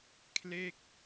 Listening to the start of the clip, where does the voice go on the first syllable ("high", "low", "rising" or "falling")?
falling